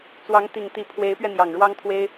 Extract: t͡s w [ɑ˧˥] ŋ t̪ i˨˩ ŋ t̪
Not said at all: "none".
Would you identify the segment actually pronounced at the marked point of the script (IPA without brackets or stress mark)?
ɑ˧˥